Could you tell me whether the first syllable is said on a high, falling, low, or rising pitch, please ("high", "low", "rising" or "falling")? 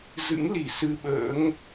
rising